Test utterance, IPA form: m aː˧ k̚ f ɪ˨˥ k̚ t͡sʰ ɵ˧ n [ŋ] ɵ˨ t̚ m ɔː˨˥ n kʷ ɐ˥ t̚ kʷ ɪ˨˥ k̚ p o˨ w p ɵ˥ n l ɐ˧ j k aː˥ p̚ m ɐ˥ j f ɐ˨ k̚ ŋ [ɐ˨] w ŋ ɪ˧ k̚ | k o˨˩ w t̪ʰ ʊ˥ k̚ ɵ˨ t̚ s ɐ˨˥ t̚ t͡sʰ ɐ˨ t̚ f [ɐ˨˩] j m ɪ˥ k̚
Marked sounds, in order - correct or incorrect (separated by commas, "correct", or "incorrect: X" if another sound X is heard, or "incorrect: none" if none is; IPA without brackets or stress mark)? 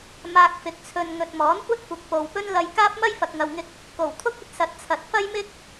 correct, correct, incorrect: ɐ˥